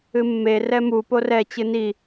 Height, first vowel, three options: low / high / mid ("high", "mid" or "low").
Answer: high